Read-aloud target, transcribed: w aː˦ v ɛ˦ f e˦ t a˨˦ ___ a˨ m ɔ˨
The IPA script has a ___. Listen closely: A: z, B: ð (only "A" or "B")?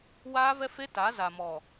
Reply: A